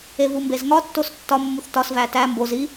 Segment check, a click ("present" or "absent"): absent